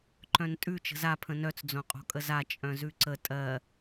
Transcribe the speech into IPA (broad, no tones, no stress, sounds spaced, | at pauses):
ǃ œ̃ n tʼ ʉ t͡ʃ ə̤ z a pʰ ə̃ n œ t͡s d͡z õ qʼ o̤ kʼ ə z a t͡ʃʼ œ̃ z ʉ ǀ ə tʼ ɜ